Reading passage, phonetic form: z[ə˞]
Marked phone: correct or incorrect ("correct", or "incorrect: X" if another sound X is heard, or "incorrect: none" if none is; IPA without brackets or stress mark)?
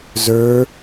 correct